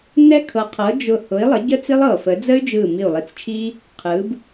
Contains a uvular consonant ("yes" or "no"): yes